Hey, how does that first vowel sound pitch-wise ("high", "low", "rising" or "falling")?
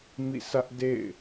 falling